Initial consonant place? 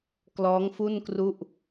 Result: velar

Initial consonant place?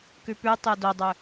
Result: velar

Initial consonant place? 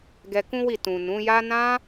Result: velar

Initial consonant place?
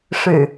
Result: retroflex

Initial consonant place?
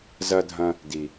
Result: alveolar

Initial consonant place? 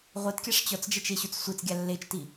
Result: uvular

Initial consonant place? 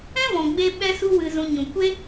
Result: labial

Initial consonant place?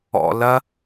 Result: alveolar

